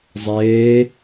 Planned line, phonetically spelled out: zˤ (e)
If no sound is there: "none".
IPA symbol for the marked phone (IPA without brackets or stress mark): eː